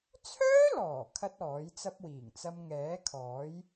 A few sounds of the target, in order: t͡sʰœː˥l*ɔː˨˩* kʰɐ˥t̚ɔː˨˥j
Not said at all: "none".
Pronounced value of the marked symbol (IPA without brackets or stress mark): ɔː˨˩